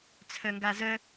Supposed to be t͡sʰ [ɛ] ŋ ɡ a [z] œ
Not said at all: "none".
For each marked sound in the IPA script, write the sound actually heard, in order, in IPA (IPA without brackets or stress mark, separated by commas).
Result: œ, z